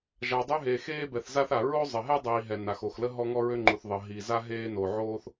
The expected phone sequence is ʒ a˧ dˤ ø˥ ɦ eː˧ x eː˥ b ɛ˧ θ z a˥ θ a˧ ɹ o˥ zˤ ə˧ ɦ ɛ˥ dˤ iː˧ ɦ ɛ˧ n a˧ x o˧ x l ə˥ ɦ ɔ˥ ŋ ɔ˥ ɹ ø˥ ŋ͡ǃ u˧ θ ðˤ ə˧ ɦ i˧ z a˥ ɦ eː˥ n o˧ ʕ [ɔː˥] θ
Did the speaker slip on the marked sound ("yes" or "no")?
yes